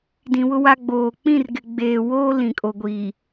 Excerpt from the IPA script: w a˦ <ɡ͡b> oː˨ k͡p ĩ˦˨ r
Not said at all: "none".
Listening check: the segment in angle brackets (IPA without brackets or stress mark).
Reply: ɡ͡b